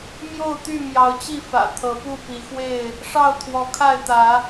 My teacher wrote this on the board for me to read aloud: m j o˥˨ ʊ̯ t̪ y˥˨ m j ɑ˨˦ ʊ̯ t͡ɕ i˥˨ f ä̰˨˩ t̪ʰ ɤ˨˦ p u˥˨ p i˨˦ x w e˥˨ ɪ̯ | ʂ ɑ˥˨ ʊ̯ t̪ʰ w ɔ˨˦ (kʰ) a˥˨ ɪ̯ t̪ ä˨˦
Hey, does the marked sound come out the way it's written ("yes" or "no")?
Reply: yes